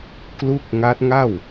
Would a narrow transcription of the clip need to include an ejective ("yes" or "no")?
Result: no